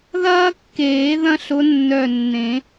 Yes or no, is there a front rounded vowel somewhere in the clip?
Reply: yes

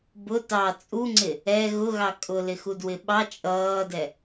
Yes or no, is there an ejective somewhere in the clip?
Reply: yes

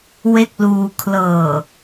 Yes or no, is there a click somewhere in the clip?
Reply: no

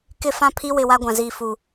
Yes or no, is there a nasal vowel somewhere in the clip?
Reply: yes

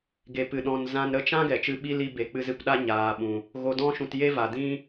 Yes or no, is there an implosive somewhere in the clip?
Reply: yes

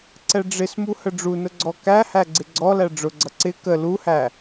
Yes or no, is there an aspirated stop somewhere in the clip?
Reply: no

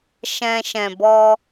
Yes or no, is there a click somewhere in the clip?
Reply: no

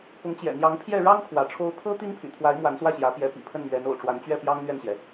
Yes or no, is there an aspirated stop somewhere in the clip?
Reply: yes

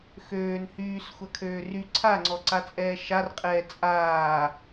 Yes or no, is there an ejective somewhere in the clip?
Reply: yes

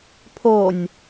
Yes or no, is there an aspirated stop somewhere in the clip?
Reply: yes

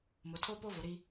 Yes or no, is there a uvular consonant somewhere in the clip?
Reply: no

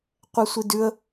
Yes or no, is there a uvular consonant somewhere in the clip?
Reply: yes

